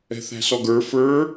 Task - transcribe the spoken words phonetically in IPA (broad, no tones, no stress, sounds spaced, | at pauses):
ɛ̤ θ æ̤ s ɔ ɡ ə˞ f ə˞